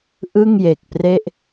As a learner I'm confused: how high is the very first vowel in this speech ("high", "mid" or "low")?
high